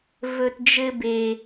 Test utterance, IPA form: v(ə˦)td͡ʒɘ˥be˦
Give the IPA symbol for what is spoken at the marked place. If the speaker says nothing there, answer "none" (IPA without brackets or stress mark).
ɵ˦